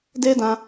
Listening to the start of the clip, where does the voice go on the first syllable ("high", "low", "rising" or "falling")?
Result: high